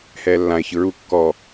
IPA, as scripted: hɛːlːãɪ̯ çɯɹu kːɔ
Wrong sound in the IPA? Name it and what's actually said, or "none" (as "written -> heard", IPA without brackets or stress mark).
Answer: none